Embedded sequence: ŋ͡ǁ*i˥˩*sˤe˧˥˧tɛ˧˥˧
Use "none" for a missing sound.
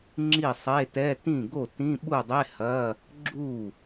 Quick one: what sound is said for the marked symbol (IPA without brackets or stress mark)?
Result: i˥˩